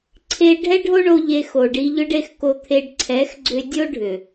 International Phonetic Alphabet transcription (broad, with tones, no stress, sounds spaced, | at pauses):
ǀʰ e˦ ɖʱ ɛ˦ ɖʱ o˦ ɳ o˧ ʎ e˧ x o˨ ɖ i˧ ʎ ʏ˦ ɖ e˧ x k o˧ t̪ʰ e˧ ɖ ǀʰ ɛ˨˦ x ɡ͡ǀ ʏ˧ dʲ o˦ ɖʱ ʏ˨